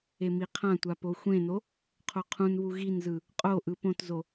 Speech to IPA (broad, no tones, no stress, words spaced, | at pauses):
emiqʰãtʷa poxʷẽno | qʰoqʰũnβu ɣinzɯ | qʼo ʔɯpõtzo